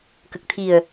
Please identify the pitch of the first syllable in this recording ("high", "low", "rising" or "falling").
low